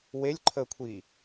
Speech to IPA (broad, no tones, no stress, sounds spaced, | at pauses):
w e lʲ ǃʰ əː kʷʰ iː